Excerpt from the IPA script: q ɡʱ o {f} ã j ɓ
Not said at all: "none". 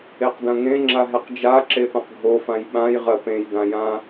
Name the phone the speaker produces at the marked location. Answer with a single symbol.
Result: f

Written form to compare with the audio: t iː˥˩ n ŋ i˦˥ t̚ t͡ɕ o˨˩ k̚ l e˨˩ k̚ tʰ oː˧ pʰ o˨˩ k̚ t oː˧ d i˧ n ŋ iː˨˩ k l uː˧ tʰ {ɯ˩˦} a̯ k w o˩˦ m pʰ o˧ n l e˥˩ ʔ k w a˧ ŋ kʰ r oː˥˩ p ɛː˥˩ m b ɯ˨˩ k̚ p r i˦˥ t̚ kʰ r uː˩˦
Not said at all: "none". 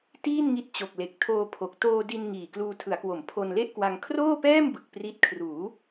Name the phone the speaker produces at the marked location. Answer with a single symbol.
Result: ɯ˩˦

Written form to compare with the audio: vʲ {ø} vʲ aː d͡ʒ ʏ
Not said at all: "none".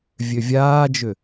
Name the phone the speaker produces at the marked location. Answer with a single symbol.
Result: ø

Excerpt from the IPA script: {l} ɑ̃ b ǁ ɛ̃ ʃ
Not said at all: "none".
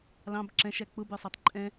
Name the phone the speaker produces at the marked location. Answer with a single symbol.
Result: l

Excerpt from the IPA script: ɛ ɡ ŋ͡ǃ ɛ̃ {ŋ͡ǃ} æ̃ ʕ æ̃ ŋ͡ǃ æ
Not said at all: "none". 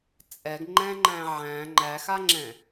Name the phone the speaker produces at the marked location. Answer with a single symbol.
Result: ŋ͡ǃ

